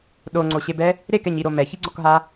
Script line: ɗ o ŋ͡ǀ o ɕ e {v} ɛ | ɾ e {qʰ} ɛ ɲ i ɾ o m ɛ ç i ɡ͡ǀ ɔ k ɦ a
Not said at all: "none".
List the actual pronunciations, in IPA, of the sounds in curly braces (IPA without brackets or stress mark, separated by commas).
b, k